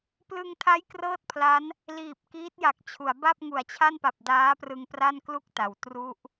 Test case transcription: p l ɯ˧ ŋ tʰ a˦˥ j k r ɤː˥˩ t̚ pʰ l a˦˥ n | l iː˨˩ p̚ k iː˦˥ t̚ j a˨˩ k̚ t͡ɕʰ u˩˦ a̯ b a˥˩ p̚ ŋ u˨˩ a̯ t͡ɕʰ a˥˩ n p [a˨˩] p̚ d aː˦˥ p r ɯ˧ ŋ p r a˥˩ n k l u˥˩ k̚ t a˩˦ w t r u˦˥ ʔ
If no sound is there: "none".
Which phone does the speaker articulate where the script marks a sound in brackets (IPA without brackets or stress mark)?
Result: a˨˩